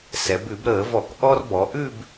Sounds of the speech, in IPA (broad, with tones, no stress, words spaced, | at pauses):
sɛ˩˧bʉ˧˩˧bɾəː˧˩˧vɔ˧˩˧k ʔɔ˦r bɔ˩˧ʔʉ˦˨b